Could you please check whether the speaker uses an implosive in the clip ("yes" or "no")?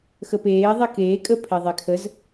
no